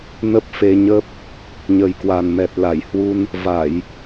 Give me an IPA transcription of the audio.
n ə˦˥ p̚ f e˧ ɲ ə˦˥ p̚ | ɲ ə˨˩ j k w a˨˩ n m ɛ˨˩ t̚ l a˧˩ j h w u˧ n | v a˧˩˨ j

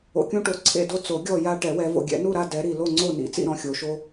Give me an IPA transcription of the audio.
o̰˨ kʲ ũ˦ ʈ o˨˩˦ ǀʰ ḛ˥˨ d o˥˨ t͡s o˨˩˦ ɡʲ ɔ˥˨ j a˦ ʈ ɛ˨˩˦ w ɛ˨˦ v o̰˨ ɡʲ ɛ̰˨˩˦ n u˥˨ ɾ a˥˨ d ɛ˨˦ ɾ i˨ l o˥˨ ŋ͡ǀ o˥˨ n ḭ˨˦ t͡s ḭ˥˨ ɾ ɔ̃˨˦ xʲ o˨˩˦ ʃ o˦

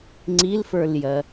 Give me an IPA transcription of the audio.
ŋ͡ǀ i l f ə˞ l j ɜ

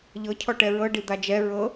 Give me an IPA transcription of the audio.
ʎ ɤ cʰ ɔ ʈ ɛ ɹ ɤ ɖ i d̪ a d͡ʒ ɛ ɹ ɤ

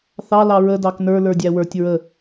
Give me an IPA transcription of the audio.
θ ɑ l ɑ ɹ ə d ɑ k n ə˞ l ə˞ dʲ æ w ə˞ tʲ ɹ ə

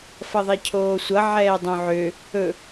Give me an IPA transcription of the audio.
f ʌ ðˤ ɛ cʰ oː sʷ ʌ ʕ ɛː dˤ õ ʕ ø | ɵ

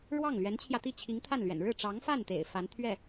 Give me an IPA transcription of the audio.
ɻ w ɑ˥˩ ŋ l ɥ ɛ˧˥ n t͡ɕʰ j ä˧ t̪ i˥˩ t͡ɕʰ i˧˥ ŋ t̪ʰ a˥˩ n l ɥ ɛ̰˨˩ n ɻ ɻ̩˥˩ ʈ͡ʂ ɑ˧˥ ŋ f a˥˩ n t̪ ḛ˨˩ ɪ̯ f a˧˥ n t̪ʰ ɥ ɛ˥˩

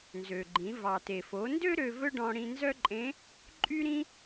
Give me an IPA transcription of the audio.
n z ø˩ ɡ͡ǃ ĩ˩˧ v ɑ˩ t e˩ f o˩˧ n d ø˥ ɾ ø˧ v ɵ˥ ɖ ɔ̃˧ ɽ ĩ˧ n z œ˥ ǃʼ ẽ˧˥ | ǃʼ y˥ ɾ ĩ˥

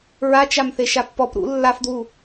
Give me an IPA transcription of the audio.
ɹ a t͡ʃ a m θ e ʃ a pː ɔ p ɾ ṵ lː a f d w u

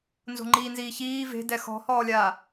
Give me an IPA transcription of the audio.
n z o̤ ŋ͡ǃ iː n z iː ç iː v e̤ d ɛ x ɔ̤ h ɔː lʲ aː

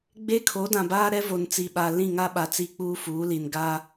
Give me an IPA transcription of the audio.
ɡ͡b e˦ kʰ o˨˦ d ã˨ b aː˦ ɾ ɛ˦ v o˨ n t͡s i˨ ɓ a˨ l ĩ˦˨ ŋ a˦ ɓ a˨ t͡s i˦ k͡p uː˦ f uː˨˦ l i˨ n ɡ a˦

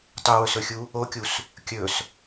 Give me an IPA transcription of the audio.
tˤ u w ɵ s ɵ xʲ u | o kʲ u s | kʲ ɵ s

